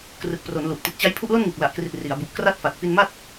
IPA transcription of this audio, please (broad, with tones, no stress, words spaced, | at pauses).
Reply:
krɯ˨˩k̚pro˩˦n lu˨˩ʔ ti˨˩t̚t͡ɕa˦˥j pʰu˥˩ʔlo˥˩nŋɯ˨˩k̚ la˨˩ʔkri˨˩t̚ ri˩˦a̯bu˨˩ʔ kra˦˥t̚fa˨˩t̚ fi˧n ma˥˩t̚